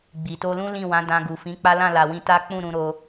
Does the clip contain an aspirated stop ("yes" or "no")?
no